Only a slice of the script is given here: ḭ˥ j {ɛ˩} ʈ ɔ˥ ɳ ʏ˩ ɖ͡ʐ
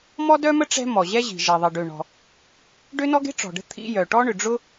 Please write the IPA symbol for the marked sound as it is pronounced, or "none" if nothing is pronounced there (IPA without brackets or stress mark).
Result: œ˩